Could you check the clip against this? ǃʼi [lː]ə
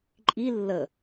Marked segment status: correct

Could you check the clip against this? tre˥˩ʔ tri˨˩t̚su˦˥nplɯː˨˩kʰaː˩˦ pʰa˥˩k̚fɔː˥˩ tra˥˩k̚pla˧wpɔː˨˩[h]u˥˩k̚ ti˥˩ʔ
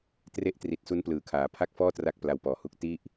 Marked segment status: correct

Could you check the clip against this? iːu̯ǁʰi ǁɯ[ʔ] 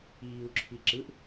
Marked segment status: correct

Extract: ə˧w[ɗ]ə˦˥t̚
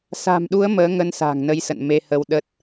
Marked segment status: correct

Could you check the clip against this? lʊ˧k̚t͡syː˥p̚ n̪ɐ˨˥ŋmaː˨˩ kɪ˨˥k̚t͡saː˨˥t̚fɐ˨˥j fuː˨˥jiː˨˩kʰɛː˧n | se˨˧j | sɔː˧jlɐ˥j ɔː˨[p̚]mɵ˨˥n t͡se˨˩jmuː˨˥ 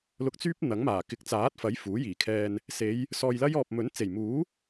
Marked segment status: correct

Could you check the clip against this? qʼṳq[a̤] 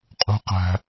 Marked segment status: incorrect: æ̤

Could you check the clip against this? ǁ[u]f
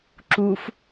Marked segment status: correct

